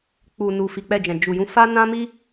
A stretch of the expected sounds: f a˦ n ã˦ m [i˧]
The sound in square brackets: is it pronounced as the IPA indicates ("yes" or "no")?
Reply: no